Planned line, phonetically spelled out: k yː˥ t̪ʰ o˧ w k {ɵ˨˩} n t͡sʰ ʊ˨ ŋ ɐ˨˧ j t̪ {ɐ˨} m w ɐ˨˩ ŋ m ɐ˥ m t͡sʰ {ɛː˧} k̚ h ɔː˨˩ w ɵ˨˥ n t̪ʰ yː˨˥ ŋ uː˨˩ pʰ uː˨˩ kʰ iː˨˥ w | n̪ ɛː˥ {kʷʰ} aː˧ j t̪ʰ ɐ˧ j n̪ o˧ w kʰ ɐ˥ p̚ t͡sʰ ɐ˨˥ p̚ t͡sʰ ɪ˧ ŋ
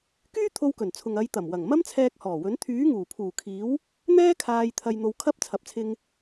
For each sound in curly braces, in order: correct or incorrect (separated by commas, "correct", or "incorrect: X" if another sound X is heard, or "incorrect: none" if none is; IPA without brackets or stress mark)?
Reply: correct, incorrect: ɐ˨˩, correct, incorrect: kʰ